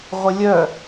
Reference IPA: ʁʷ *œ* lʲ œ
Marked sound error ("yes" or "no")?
yes